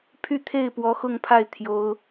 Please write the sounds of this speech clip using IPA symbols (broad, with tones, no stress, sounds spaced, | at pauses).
pʰ y˥˧ t̪ʰ e˥˩ ɪ̯ p w ɔ˧˥ x ʊ˥˧ ŋ pʰ a˥˩ ɪ̯ t̪ʰ j o˥ ʊ̯